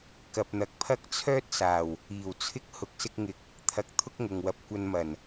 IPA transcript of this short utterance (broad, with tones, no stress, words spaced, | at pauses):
kɐ˨p̚n̪ɐ˨k̚pʰɐ˥k̚ t͡sʰœː˥t̚saː˨˩w | iː˨˩wt͡sʰɪ˥k̚ hʊ˨˥k̚sɪ˧k̚ŋɪ˨˥k̚ | t̪ʰɐ˧k̚ t̪ʰʊ˥k̚ŋʊ˨ŋwɐ˨˥p̚kʷɐ˧n mɐ˨˩n